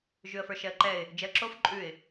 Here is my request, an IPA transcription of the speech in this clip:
ʒ ʉ ə̯ f ə˞ ʃ ɛ ə̯ ǃ ɛ ɪ̯ | d͡ʒ ɛ ə̯ ǁ o f ǃʼ ʉ ɪ̯

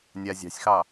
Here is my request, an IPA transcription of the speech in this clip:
nʲ a zʲ ɑ̤ sʲ x ɑ

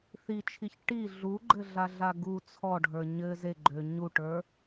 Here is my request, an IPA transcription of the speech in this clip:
θ i t͡ʃʰ i ç ʈ i ɮ u ɡ͡ǃ ɘ ɮ a ɮ a ɡ u t͡sʰ ɔ ɖʱ ə˞ ɲ ɘ z e ɡ͡ǃ ø ɲ u ʈ ə˞

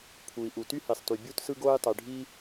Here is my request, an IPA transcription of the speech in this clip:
pʰ u˩ i̯ ʔ u˩ t y˥ h i˩ sˤ t y˩ bʲ u˥ t s ɯ˥ ɡ oː˥ j tˤ y˩ ɖʱ i˥

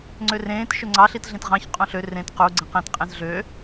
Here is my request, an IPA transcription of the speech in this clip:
ŋ͡ǀ ø r ẽː t ʃ ɵ ŋ͡ǀ ɑ ɬ i t ɮ ẽ t ʁ ɑ̃ ç qʼ õ ɬ ø r ẽ t q u ɡ͡ǀ ẽ q ẽ t qʼ ẽ z ɮ ø

